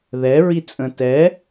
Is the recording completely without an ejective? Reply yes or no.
no